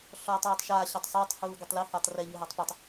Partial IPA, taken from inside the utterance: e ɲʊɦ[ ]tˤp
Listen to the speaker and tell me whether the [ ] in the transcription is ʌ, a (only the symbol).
a